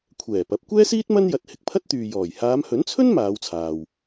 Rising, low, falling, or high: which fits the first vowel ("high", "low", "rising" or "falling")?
low